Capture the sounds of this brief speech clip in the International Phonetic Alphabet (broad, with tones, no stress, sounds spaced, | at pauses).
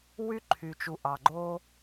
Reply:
w y˥ ǃʰ y˩ t͡ʃ u˩ ʔ ɑ˩ ɡ͡ǃ o˥